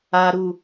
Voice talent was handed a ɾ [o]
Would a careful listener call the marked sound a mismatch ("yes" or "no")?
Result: yes